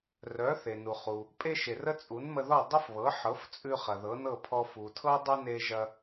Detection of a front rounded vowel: present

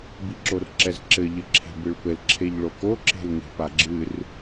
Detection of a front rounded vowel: absent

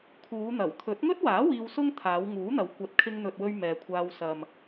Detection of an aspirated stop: present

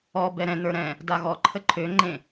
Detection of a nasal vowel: present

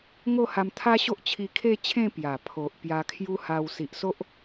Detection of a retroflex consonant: absent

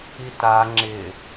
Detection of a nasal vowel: absent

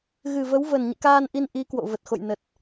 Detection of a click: absent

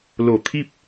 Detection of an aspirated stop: present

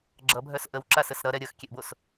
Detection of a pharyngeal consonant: absent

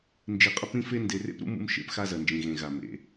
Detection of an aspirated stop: absent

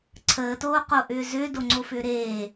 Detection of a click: present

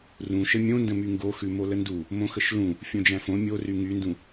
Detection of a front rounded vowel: present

